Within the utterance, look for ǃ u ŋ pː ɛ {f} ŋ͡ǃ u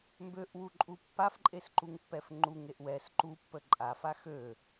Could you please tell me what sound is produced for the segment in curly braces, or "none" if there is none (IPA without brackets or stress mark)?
f